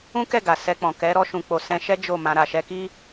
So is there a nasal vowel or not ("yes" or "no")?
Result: yes